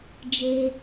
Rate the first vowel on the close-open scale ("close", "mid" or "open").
mid